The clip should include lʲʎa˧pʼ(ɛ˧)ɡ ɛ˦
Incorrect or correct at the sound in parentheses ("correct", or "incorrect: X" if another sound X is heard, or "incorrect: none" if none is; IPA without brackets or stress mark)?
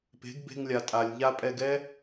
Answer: correct